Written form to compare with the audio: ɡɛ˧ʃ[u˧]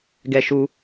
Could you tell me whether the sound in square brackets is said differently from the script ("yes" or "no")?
no